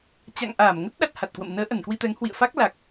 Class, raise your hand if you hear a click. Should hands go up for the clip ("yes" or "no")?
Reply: no